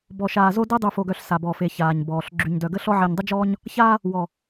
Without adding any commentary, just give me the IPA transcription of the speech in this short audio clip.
bɔ˨ʃaː˨zo˦de˦ dˤy˨fo˨ɡœ˨ɬ sa˨ bɔ˨fe˨ çaː˨ɲbɔː˨ɬ ɡ͡ǁy˨ɲdœ˨ɡə˦ɬɔ˦ ʕe˨ɲdˤə˦d͡ʒɔː˦ɲ | çaː˦ | wɔ˨

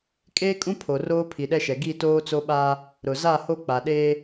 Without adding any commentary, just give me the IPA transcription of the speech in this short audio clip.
kʼeː˦kʼũ˦pʰo˨ roː˦pʰi˨ɗɛ˦ʃɛ˨ ɡi˦˨toː˦t͡so˦ɓaː˦ | ɾʊ˨ za˦˨ho˦ k͡pa˨ɗeː˦

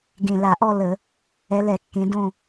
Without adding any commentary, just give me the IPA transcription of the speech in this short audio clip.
ɡẽ˨˩la˧˩˧ʔɔ˥˧ lə˧˩˧ | ɛ˨˦lɛ˧˩˧kːẽ˨˦dõ˥˧

